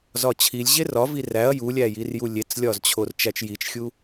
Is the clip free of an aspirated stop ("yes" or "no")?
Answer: no